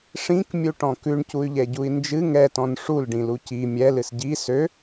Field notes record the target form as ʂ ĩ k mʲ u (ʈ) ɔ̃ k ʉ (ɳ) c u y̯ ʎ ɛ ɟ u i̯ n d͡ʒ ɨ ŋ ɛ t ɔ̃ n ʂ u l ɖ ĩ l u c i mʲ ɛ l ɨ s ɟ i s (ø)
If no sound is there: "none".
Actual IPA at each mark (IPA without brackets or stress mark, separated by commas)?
ʈ, ɳ, ø